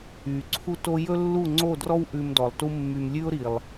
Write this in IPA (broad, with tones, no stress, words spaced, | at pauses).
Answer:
y˨ ǀʰu˦to˦ jɵ˦lːu˦˨ŋ͡ǀo˦˨drɔ˦w ʔʉ˧mdɔ˨lˠtu˦mːy˧m lʲʉ˦ʊ̯ɾi˨lˠ